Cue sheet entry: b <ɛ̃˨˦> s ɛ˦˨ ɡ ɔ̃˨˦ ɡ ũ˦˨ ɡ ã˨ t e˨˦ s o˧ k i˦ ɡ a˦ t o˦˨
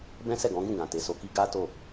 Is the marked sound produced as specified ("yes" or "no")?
no